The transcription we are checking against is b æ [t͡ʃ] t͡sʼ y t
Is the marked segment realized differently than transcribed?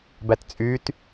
yes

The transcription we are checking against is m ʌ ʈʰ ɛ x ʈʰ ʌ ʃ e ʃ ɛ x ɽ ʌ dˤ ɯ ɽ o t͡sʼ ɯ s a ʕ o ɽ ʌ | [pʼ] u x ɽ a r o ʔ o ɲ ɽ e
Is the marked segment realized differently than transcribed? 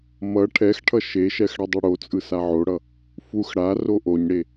yes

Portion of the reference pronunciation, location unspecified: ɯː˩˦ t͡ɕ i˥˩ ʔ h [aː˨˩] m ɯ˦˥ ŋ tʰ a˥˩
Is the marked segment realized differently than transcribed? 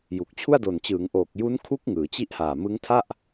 no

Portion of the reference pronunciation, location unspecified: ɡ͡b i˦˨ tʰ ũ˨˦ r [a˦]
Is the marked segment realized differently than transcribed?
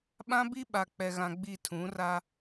no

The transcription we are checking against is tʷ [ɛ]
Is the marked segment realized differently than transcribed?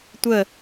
yes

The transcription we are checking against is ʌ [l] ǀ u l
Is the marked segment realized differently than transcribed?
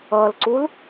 no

